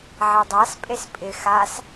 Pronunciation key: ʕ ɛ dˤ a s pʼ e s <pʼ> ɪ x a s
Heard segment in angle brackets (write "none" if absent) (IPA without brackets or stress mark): pʼ